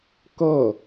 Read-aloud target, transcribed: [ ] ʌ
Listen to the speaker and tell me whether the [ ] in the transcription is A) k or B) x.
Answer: A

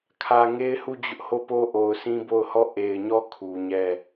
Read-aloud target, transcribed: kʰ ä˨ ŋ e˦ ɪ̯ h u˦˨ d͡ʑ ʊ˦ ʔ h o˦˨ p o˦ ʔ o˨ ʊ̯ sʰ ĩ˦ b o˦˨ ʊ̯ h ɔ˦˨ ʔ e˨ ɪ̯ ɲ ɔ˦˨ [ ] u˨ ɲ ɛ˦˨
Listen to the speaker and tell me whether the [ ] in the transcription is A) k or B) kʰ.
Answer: B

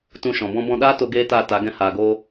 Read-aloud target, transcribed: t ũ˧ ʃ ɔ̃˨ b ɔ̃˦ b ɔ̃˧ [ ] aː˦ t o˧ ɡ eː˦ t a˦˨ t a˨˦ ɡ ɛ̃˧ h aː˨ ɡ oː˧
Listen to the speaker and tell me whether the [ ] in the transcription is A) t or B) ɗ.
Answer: B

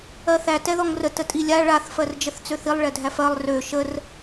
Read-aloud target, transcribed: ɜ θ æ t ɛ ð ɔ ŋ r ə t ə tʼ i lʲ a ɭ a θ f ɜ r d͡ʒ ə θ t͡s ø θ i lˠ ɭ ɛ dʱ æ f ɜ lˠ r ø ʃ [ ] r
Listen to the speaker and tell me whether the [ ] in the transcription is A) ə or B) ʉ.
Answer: A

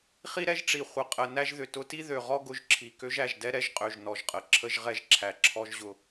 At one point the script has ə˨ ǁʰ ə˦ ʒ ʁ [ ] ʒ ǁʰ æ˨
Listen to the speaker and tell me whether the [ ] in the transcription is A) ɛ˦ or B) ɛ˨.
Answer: A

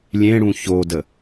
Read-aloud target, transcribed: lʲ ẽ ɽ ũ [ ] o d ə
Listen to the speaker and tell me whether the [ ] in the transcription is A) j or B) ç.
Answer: B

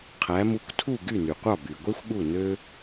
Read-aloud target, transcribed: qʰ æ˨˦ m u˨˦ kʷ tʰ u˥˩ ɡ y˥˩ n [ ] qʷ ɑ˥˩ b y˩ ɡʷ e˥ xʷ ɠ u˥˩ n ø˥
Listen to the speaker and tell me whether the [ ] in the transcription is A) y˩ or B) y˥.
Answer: A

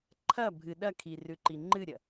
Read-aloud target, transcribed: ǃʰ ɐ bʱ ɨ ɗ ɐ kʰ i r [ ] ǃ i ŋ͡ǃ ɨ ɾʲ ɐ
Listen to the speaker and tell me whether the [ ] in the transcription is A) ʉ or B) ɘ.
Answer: A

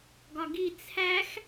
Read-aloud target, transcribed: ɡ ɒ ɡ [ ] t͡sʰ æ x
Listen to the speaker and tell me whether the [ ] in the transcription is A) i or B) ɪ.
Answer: A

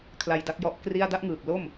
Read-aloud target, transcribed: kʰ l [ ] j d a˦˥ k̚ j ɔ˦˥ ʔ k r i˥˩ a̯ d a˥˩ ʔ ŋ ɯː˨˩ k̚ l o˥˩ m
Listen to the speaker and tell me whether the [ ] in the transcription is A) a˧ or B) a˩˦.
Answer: A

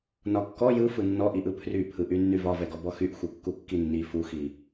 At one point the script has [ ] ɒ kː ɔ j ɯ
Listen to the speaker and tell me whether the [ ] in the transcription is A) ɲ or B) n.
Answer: B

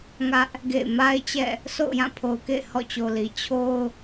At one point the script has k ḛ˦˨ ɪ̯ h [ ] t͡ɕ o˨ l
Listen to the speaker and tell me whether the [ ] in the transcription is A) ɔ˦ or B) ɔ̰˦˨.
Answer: B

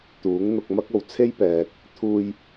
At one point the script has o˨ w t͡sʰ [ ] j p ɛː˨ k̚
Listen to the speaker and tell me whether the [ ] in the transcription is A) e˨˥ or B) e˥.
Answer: B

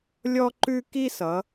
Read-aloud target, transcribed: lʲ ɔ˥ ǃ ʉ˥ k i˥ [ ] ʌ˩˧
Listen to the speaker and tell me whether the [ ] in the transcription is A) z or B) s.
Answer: B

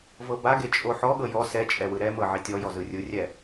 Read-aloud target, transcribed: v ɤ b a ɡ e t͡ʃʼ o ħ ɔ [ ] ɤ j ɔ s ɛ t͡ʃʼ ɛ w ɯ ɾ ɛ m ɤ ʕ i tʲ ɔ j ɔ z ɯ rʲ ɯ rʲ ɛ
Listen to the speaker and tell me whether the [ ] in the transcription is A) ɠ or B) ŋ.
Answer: A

